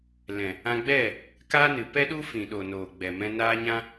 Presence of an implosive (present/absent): present